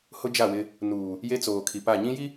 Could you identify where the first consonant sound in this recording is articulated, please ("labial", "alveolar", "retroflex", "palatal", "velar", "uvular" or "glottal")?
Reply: glottal